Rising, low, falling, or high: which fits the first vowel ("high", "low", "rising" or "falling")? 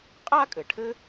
high